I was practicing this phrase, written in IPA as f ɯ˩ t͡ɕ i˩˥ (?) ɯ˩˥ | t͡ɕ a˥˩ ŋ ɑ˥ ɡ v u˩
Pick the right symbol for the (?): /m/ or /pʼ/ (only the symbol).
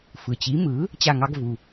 m